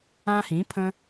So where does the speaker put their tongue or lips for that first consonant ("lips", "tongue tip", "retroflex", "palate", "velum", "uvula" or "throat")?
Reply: throat